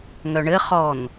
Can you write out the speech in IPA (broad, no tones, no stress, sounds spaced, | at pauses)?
ŋ œ ɳ ɘ χ ɔ n